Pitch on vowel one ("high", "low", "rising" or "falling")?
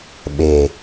low